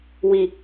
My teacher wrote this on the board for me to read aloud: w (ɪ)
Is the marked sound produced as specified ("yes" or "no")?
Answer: no